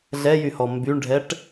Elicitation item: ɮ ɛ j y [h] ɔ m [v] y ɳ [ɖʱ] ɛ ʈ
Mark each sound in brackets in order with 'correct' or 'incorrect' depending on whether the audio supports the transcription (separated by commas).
correct, incorrect, correct